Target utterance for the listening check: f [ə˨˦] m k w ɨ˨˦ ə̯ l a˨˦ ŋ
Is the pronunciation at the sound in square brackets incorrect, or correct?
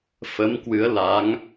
correct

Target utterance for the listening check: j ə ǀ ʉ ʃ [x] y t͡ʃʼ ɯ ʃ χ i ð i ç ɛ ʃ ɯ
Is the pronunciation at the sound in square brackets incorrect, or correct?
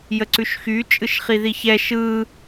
correct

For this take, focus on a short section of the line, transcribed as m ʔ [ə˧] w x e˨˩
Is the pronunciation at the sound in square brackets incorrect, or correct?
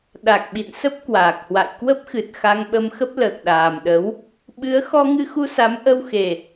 correct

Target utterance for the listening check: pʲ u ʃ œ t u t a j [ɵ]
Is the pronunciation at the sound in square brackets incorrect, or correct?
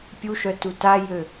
incorrect: ø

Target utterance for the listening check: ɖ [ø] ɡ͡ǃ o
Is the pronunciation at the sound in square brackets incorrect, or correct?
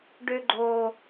correct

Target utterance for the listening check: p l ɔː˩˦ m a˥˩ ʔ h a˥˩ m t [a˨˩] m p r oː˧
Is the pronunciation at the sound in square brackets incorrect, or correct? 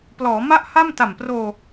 correct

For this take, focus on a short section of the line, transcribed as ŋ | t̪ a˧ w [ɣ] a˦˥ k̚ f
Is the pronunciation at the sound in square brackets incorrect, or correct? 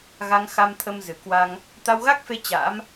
correct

